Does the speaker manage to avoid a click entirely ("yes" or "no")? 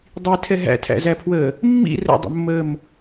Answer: yes